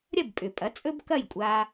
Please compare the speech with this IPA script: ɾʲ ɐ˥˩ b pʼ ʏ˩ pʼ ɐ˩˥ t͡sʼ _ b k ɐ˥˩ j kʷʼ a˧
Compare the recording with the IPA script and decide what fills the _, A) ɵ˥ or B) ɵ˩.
A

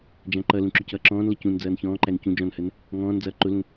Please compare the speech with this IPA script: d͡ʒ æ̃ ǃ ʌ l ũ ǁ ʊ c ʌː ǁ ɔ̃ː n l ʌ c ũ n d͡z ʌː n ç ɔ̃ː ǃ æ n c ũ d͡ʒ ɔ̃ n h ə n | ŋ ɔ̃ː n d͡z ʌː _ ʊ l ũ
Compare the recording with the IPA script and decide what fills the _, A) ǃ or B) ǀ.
A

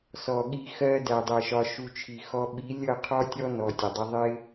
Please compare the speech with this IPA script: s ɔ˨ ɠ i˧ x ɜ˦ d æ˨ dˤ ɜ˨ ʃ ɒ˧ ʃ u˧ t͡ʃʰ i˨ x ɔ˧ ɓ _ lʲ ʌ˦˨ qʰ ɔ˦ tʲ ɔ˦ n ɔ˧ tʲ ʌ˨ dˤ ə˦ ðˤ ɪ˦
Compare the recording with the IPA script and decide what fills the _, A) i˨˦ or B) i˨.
A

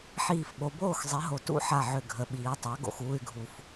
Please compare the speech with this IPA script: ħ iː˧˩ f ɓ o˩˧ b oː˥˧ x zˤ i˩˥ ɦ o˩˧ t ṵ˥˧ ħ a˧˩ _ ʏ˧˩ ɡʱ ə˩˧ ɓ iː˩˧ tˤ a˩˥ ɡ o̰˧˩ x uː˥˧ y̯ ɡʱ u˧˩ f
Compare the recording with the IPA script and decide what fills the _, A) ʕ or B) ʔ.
A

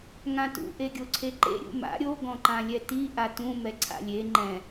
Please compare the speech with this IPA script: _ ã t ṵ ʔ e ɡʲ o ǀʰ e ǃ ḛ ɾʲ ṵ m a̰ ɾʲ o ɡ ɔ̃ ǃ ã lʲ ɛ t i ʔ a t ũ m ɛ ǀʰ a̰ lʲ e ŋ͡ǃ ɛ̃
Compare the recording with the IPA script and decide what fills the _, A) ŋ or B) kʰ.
A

